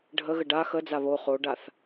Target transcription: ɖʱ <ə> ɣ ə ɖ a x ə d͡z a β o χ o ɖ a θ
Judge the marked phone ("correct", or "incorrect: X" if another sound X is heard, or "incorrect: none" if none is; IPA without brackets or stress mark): correct